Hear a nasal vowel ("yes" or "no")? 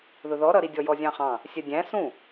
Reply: yes